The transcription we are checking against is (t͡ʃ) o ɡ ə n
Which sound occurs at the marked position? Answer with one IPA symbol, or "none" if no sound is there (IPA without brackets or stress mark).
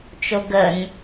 t͡ʃ